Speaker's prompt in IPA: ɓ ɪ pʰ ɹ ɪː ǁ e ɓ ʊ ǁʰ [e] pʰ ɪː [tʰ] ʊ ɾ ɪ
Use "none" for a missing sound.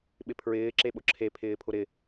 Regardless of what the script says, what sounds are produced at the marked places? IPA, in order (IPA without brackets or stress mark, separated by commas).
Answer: e, pʰ